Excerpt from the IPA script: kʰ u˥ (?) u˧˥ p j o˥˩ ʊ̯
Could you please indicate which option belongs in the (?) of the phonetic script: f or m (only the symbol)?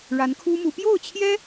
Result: m